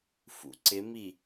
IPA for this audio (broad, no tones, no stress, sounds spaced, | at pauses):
f ṵ ǀ ɪ m i